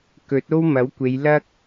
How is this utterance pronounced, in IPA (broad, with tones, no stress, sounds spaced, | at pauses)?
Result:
k ɵ˨˥ t̚ o˥ w m ɐ˨˥ w kʷ e˨˧ j l ɐ˥ k̚